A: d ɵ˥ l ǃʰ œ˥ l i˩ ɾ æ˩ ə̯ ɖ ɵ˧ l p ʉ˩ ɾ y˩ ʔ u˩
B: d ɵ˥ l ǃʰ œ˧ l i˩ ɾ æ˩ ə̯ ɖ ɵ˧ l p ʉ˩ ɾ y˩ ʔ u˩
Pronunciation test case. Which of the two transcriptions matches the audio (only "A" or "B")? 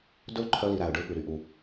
B